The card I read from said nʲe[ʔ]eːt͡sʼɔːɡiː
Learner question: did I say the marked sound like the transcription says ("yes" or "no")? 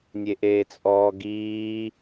yes